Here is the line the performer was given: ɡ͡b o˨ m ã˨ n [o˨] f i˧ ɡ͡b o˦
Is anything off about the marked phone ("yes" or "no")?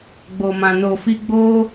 no